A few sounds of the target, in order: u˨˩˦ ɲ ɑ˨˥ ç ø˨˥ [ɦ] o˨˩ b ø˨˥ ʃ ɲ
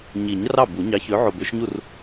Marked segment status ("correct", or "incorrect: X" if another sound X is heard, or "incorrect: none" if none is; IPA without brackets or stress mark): incorrect: ʕ